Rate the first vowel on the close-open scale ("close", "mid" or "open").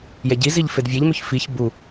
mid